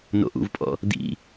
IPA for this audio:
no̰ʔṵvpʼɔ̰ | dḭ

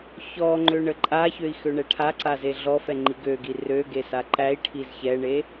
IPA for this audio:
çɔŋ͡ǃø ɳəǃʼaçøi̯ xøɳɛʈʰaǀa zeɮɔfɛ ŋ͡ǃiɡøɡi røɡe saǃæi̯ʈʰiz çɛɳe

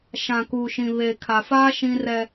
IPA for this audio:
ʃã˨kuː˨ʃĩ˨ βeː˨kʰa˨faː˦ ʃĩ˦rɛ˦

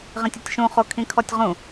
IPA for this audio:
ʁĩtʲɤtʲʃũ χokʰĩkʰɔtʲʁũ

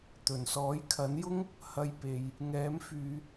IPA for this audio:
t̪ɵ˨˩nsɔː˨˥jkʰɐ˨˥njʊ˥ŋ | hɐ˧jpe˨j | ŋɛː˨˥mfyː˨˧

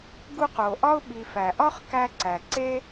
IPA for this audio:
ɡu˦q o˩ ʔɒ˥ʊ̯ɓi˨ fæ˩ʔɒ˥χ kæ˦ǀæ˩ ǀe˥

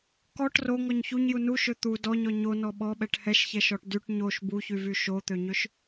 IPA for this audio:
kɔʈ roŋɔɲ çuɲju nuʃø t̪u dɔɲɔ ɲonɔ ɓɔɓɛʈ hɛʃçɛʃɔʈ dyʈ ɲoʃ buçyvy ʃot̪øɲøʃ

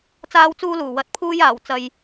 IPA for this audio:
t͡saː˥wt͡suː˥luː˨˩ wɐ˧t̚pʰuː˥j aː˨˩w t͡sɐ˨j

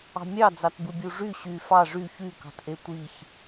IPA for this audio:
ɑ̤mʲɑd͡zɑtbɯ bʲuʐy ɕy fɑ ʐy çykɑ̤tʔe tʷiç

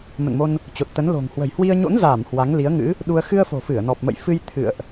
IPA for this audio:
mə̰˧˨nmo˧n | t͡ɕo˨˩t̚t̪ə˨˦n lo̤˨˩ŋ hwə̤˨˩jhwi˧ə̯ ɲo̰˧˥nzaː˧˩m hwa˨˦ŋli˨˦ə̯ŋɨ̰˧˥ | ɗu˧ə̯ xɨ˧ə̯fo̤˨˩fɨ˧˩ə̯ nɔ˨˩p̚mə̰˧˨jfɨ˧j t̪ʰɨ̰˧˨ə̯ʔ

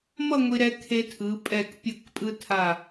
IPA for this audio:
mʌ˥˧ ŋʷi˧ɾɛ˧kʰe˧tʰɯ˩˧ pʼɛ˧˩kpʲɯ˧˩k pʼɯ˧tʰa˧˩

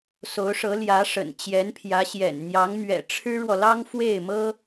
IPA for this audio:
so˧˥ʊ̯ʂɤ˧˥ljä˧˥ʂə̰˨˩n t͡ɕjɛ˧˥npʰjä˧˥ɕjɛ̰˨˩n n̪jɑ˧˥ŋmɥɛ̰˨˩ ʈ͡ʂʰɻ̩˥ɻwɔ˨lɑ˥ŋ fwe˥˩ɪ̯mɤ˥

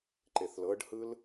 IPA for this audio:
ǃeθlɤɖhɯl

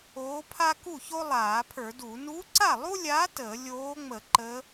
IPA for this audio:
oː˧˥pʰa˥ ku˥˨ço˥ lˠaː˧˩˧pʰə˞˧˩˧du˧˩˧ nu˧˥ǀa˥˨lˠu˥lʲaː˧˥ təː˧˩˧lʲoː˧˥ŋ͡mə˧˩˧ ǃəː˧˥

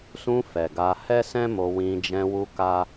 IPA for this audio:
sũ˧ fɛ˨ɡa˧ hɛ˦sɛ̃˦mo˧wĩ˧ d͡ʒɛ̃˧wu˧ ka˦

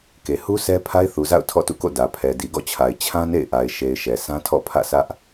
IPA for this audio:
ke˨ hu˦ sʰɛ˦ pʰa˦ɪ̯θu˨za̰˦˨ʊ̯ tʰɔ̰˦˨tṵ˦˨ko̰˦˨ dä˨ pʰɛ˨di˨ɡɔ̰˦˨t͡ɕʰa˨ɪ̯ t͡ɕʰã˦nḛ˦˨ɪ̯ʔa˨ɪ̯ ʃe˨ɪ̯ ʃɛ˨sʰã˦tʰɔ̰˦˨ pʰä̰˦˨sʰä˦ʔ

